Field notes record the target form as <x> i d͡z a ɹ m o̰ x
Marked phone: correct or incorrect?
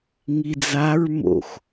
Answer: incorrect